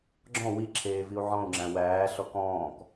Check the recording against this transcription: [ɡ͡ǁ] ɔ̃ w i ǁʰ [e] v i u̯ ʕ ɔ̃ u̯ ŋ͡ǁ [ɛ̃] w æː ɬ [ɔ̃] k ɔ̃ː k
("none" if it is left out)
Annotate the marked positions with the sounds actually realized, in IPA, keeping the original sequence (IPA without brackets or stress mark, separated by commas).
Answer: ɡ͡ǁ, eː, æ̃, ɔ